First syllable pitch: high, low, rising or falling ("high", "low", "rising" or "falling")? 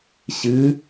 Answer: rising